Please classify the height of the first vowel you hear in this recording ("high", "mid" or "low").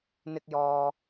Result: high